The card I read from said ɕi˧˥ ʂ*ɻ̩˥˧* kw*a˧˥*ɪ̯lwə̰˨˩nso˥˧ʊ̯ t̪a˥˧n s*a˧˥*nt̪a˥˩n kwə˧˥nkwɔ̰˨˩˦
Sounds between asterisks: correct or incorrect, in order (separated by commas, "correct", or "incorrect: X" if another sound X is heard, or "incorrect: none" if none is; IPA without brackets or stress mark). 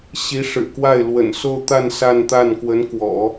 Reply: incorrect: ɻ̩˨˩, incorrect: a˥˩, incorrect: a˥˧